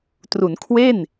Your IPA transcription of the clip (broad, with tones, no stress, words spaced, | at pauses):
tru˩˦nkʰwe˥˩n